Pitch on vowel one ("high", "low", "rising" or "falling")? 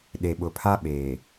low